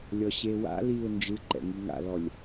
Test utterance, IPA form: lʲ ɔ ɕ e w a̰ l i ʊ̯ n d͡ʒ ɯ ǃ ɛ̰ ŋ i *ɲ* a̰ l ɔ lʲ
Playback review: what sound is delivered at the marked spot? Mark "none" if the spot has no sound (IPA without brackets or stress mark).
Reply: ŋ